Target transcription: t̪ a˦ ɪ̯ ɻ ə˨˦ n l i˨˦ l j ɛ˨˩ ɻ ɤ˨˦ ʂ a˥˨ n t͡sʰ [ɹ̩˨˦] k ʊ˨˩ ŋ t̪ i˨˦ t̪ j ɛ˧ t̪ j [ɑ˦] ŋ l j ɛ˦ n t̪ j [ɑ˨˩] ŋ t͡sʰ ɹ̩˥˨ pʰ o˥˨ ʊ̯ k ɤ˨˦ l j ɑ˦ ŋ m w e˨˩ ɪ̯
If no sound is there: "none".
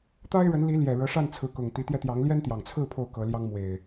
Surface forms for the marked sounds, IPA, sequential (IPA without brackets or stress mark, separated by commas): ɹ̩˨˦, ɑ˨˦, ɑ˨˩